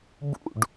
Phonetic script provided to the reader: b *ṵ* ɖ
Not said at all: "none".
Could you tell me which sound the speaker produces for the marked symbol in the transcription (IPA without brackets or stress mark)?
ṵ